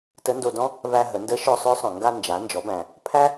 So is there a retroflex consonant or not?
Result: no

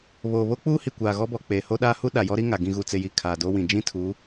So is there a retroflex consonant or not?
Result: no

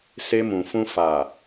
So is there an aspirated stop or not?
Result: no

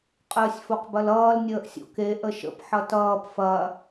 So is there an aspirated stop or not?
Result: no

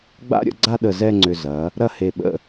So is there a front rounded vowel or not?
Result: yes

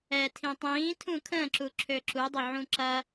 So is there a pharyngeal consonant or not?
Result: yes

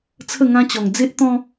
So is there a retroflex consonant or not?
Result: no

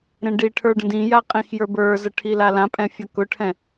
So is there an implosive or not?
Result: no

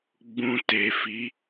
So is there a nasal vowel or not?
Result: yes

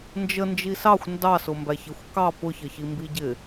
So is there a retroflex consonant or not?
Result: no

